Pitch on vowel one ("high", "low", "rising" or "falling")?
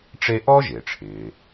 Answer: high